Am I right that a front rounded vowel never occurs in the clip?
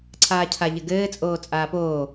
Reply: yes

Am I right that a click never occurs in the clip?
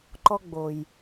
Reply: no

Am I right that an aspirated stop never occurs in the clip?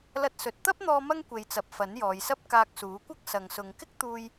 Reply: yes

